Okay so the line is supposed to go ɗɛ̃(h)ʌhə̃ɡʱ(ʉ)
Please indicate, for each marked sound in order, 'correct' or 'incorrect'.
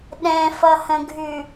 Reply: incorrect: f, correct

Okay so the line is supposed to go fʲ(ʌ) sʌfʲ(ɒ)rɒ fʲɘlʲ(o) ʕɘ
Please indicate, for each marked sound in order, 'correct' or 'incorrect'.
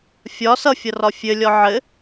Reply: incorrect: ɒ, incorrect: ʌ, incorrect: ɔ

